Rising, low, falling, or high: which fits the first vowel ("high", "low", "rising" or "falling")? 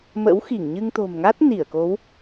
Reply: rising